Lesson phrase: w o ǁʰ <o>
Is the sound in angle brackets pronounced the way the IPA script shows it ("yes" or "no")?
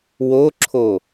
yes